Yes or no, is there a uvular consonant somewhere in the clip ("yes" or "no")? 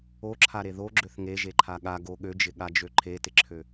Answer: no